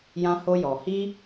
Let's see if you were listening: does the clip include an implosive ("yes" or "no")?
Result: no